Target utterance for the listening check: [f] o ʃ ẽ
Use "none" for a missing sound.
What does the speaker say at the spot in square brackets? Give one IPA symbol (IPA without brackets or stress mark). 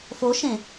f